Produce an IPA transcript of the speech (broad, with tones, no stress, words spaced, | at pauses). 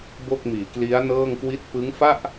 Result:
bo˥˩k̚miː˩˦kli˦˥a̯ nɤː˥˩ŋkwi˥˩t̚ pɯ˦˥ŋfa˥˩ʔ